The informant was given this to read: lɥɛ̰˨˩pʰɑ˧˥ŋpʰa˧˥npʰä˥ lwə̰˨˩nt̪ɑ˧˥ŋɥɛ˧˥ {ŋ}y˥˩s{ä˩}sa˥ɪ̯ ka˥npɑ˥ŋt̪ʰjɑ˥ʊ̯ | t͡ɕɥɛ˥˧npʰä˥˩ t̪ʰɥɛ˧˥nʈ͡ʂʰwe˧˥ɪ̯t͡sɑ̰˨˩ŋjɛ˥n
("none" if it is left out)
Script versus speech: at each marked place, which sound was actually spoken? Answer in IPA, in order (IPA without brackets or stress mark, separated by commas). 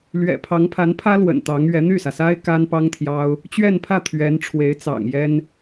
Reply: n̪, ä˩